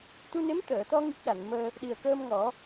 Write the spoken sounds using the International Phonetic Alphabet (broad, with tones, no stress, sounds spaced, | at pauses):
t̪ u˧ n e˧˥ m t̪ əː˨˩˨ t̪ ɔ˧ ŋ i˦˥ k̚ ɗ a˨˩˨ n m əː˧ | ɗ i˨˩ ə̯ k əː˧ m ŋ ɔ˨˩˦